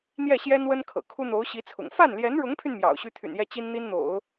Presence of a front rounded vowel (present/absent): present